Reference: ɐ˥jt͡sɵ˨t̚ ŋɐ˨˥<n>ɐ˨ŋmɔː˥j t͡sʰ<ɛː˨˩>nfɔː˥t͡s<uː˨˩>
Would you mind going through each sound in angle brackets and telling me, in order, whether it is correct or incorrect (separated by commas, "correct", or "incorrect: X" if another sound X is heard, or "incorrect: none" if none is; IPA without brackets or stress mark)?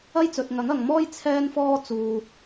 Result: incorrect: ŋ, incorrect: ɛː˥, incorrect: uː˨